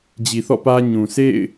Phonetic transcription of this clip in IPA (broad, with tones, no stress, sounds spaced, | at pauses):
d͡ʑ i˨ θ ɔ̰˦˨ p ä˦ ɲ ũ˨ s ḛ˦˨ ɪ̯